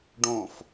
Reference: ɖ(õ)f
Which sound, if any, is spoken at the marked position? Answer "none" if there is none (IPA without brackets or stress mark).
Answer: õ